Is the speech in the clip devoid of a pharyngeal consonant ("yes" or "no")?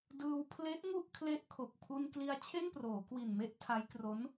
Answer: yes